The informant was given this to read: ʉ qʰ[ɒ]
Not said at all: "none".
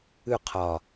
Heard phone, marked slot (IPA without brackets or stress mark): ɒ